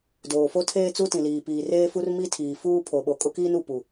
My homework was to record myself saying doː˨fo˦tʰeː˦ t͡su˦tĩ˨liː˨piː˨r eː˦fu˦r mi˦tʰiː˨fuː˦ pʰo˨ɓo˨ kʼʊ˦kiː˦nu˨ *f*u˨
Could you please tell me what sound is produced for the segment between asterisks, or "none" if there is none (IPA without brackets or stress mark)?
p